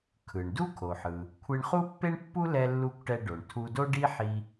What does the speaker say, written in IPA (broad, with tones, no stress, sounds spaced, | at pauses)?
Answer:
kʰ ɯ˩ ɳ d u˥ kʰ o˩ ħ ɯ˩ | kʷʰ e˧ ɳ χ u˥ pː e˥ ɳ pː u˥ l ɛ˧ lː u˧ kʷ ʈ ɛ˧ ɖ o˩ ɳ tʰ u˧ d o˥ ɖ i˥ ħ i˧